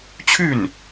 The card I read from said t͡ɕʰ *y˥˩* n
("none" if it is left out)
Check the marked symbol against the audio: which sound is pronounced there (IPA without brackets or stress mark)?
y˥˩